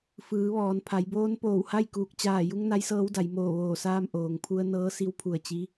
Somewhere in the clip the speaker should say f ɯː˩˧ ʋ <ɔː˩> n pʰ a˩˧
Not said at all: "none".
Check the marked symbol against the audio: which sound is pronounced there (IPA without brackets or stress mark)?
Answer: ɔː˩